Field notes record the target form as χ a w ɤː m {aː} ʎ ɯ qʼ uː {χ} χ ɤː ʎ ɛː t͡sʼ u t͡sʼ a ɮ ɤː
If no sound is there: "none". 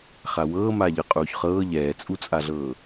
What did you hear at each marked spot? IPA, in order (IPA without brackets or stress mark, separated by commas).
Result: aː, ç